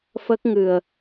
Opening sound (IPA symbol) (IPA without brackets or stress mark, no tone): f